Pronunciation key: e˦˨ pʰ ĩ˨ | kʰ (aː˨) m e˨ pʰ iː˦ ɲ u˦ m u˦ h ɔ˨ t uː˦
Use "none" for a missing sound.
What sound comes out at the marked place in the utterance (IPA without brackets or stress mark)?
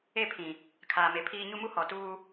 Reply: aː˨